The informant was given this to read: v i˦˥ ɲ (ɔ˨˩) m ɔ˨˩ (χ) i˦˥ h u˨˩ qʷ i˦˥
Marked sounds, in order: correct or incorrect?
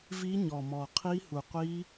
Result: correct, incorrect: qʰ

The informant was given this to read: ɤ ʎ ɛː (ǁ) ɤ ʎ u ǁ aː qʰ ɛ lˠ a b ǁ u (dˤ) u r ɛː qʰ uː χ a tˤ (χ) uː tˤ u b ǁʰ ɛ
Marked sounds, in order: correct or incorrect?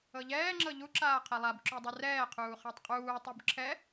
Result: incorrect: ŋ͡ǁ, correct, incorrect: qʼ

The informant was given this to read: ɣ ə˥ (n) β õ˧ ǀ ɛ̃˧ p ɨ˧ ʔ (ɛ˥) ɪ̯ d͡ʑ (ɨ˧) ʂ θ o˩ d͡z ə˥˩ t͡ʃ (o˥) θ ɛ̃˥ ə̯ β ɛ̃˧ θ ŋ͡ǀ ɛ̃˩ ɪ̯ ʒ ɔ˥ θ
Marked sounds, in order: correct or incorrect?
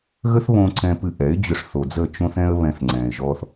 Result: incorrect: θ, incorrect: ɛ˩˥, incorrect: ʏ˧, incorrect: õ˥

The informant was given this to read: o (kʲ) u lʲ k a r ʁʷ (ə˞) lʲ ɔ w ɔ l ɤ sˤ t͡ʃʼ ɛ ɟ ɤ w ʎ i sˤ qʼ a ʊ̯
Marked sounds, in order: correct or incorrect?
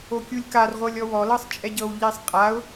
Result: correct, incorrect: ɤ

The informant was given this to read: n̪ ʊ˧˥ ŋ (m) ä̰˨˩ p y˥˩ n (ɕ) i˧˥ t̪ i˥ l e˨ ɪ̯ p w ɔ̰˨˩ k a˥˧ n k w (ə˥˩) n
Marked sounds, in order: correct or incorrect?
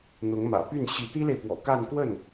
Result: correct, correct, correct

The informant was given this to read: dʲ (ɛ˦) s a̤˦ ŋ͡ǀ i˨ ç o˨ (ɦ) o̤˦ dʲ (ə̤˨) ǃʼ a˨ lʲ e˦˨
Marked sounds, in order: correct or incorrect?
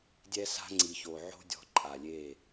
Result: correct, incorrect: ʕ, incorrect: ɔ̤˨

